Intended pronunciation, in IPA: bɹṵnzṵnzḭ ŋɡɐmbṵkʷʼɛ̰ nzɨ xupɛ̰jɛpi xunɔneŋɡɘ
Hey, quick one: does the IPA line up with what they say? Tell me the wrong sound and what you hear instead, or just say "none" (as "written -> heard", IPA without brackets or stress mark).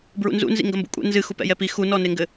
none